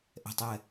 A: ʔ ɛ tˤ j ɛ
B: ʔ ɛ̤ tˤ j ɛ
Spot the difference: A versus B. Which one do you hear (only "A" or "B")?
B